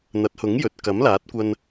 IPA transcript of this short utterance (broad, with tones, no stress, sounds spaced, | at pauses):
n̪ ɐ˨˥ t̚ h ʊ˨˥ ŋ j ɵ˨ t̚ k ɐ˨˥ m l aː˨˥ t̚ kʷ ɐ˧ n